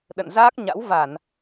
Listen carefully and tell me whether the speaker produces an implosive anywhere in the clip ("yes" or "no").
yes